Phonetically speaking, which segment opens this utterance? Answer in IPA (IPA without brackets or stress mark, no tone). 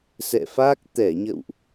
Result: s